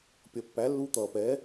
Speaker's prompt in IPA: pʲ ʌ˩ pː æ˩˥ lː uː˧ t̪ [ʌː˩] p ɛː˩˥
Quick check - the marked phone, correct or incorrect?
correct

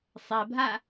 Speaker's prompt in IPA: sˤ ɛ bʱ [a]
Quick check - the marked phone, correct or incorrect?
correct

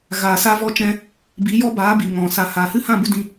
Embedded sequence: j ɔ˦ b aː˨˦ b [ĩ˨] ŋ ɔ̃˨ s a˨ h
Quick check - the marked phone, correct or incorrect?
incorrect: i˨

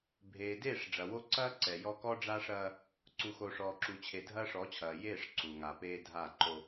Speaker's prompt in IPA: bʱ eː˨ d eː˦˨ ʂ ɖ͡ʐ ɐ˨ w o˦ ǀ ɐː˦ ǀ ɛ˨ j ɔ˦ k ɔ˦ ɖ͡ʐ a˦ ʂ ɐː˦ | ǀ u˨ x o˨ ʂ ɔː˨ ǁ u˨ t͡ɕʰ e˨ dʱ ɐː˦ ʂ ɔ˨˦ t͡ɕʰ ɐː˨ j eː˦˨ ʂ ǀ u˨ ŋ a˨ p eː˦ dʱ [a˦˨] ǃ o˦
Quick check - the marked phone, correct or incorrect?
correct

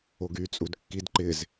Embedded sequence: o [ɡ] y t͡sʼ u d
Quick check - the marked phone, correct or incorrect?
correct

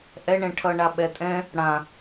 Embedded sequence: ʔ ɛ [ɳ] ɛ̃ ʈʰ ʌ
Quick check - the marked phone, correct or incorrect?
correct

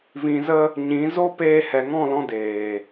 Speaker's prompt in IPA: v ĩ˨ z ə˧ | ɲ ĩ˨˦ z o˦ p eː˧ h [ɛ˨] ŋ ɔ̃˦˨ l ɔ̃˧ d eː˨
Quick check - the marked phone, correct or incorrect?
correct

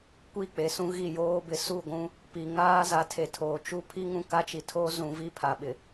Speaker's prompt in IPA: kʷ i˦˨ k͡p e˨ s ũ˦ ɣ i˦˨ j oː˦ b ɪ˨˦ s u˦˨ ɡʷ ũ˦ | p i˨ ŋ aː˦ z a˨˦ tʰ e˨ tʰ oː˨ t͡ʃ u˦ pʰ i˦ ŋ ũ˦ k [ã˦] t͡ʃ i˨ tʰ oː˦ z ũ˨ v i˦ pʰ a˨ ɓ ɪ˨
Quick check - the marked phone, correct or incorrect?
incorrect: a˦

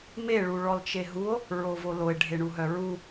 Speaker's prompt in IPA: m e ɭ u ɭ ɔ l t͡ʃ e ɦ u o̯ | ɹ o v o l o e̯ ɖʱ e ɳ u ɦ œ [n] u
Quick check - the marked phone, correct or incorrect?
incorrect: ɹ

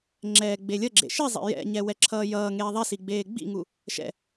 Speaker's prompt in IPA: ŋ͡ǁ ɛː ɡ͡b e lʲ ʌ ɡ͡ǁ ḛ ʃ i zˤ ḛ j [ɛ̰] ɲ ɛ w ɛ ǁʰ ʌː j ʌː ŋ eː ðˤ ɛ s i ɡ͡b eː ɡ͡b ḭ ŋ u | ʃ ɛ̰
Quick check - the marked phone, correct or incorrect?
correct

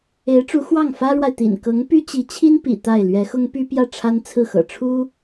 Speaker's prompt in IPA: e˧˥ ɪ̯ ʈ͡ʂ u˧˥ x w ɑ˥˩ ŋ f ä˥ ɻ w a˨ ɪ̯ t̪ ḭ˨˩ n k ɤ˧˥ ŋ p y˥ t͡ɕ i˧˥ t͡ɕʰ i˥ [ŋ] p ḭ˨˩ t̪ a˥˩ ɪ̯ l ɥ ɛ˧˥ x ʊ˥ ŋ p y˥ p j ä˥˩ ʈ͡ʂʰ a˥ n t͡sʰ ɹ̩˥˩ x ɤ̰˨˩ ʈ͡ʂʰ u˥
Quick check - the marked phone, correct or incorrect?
incorrect: n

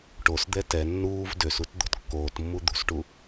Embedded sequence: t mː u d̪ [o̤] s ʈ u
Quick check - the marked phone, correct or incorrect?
incorrect: ṳ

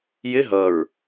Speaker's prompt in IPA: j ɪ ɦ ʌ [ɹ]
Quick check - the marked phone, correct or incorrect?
correct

